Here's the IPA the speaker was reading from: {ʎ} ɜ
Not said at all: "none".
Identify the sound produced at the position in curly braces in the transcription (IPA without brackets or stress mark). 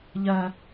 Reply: ʎ